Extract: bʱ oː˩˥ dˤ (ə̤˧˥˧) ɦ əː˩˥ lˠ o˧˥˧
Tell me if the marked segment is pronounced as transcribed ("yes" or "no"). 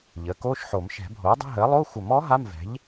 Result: yes